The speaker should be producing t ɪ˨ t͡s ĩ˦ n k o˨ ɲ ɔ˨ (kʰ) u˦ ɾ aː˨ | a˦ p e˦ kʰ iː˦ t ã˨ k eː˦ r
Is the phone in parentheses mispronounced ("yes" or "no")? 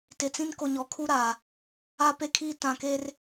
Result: no